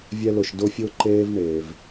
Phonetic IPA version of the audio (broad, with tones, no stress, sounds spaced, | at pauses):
vʲ ɛ˦ l ʊ˨ ʃ d ʊ˥ fʲ ʊ˥ ǃ eː˦ v ɳ e˩ v